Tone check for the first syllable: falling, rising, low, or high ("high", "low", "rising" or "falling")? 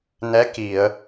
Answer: rising